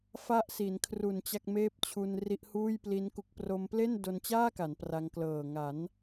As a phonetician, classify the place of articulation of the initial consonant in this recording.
labial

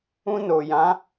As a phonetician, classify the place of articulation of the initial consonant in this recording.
alveolar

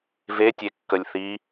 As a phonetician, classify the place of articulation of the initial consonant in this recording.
labial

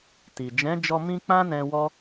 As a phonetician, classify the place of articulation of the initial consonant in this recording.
alveolar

